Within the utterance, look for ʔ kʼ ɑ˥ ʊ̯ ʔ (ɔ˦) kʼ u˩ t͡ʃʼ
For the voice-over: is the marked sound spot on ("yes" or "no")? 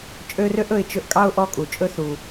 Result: yes